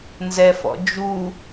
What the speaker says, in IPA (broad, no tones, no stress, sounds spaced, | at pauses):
n z ɛ f ɔ̰ d͡ʒ u